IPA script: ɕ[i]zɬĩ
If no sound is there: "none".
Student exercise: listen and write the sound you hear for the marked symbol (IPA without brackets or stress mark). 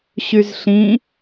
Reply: y